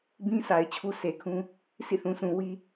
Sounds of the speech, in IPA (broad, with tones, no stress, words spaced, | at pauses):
bĩ˦sa˨ɪ̯ t͡ɕʰu˦se˨kʰũ˦ | sḭ˦˨θũ˨sʰũ˨ wi˦